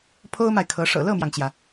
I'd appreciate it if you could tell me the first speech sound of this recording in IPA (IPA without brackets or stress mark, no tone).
pʰ